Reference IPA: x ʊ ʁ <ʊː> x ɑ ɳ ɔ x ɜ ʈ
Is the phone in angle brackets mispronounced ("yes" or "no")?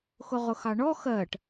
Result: yes